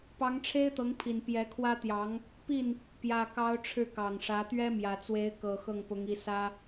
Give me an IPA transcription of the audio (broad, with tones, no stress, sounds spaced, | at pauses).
p ɑ˧˥ ŋ ʈ͡ʂʰ e˥ ɪ̯ t̪ ɤ˧˥ ŋ pʰ i˨˩ n p j ɛ˧˥ kʰ w ä˥ t̪ j ɑ˧˥ ŋ | p i˥˩ n | p j ä˨˩ k ɑ˧˥ ʊ̯ ʈ͡ʂʰ ɻ̩˥˩ k ɑ˨˩ ŋ ʂ ä˧˥ t̪ ɥ ɛ˥ m j ä˨˩ t͡s w e˧˥ ɪ̯ k ɤ˨˩ x ɤ˥˩ ŋ p ʊ˧˥ ŋ i˧˥ s ä˥